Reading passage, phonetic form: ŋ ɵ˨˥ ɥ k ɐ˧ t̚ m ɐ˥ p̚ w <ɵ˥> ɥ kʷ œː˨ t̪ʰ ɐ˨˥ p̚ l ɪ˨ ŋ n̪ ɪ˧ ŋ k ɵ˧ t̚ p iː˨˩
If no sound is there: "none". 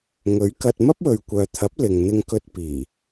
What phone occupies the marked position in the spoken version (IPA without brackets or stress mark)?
ɵ˨